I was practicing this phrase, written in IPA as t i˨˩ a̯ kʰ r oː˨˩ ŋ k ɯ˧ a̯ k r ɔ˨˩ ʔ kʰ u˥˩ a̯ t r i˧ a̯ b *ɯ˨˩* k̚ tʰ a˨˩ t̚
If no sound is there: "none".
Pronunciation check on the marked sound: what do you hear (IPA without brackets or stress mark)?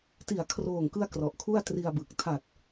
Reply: ɯ˨˩